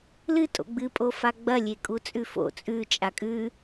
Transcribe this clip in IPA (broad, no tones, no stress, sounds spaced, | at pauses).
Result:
l ɨ tʼ o̰ ɡ͡b ɨ pʼ o f a ɡ͡b ɐ lʲ e kʼ u t͡sʼ ʉ f o̰ t͡sʼ ʉ t͡ʃʼ a kʼ ʉ